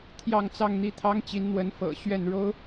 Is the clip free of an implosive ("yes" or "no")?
yes